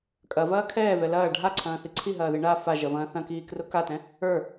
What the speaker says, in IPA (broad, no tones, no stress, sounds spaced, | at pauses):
kʼ ɐ v ɐː kʰ ɛː v ɛ l ɐː ɖʱ a ǀʰ ɐ̃ː θ i ǀʰ i ɦ ɐː ð i ɳ a f a ʒ ɐ v ɐ̃ː θ ɐ̃ k iː k r ʊ k a t ɛ̃ | ə˞